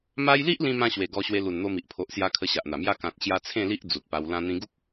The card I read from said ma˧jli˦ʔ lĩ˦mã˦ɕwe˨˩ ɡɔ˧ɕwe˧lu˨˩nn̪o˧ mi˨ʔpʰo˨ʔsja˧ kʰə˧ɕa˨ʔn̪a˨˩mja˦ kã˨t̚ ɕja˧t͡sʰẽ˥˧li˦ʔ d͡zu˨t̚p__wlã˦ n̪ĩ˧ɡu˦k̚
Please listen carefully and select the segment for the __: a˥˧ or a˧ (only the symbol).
a˧